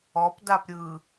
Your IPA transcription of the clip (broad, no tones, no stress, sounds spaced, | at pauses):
ɔ p d a p ɾʲ ɯ